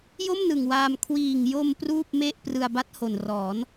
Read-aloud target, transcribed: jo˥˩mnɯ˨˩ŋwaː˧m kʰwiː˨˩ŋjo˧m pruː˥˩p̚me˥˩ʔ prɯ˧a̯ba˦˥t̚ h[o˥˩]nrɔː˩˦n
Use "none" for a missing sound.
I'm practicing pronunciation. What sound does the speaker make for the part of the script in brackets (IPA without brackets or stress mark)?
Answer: o˨˩